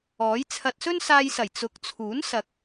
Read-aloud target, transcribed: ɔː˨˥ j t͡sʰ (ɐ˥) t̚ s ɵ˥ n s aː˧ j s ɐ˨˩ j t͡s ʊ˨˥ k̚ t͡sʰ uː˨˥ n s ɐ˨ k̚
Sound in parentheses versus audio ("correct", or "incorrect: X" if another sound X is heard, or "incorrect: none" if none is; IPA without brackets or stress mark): incorrect: ɐ˧